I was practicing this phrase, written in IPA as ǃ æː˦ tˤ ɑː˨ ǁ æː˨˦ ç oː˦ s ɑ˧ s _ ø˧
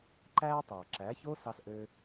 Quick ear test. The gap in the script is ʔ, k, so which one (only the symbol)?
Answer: ʔ